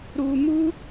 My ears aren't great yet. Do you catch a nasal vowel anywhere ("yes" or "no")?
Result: no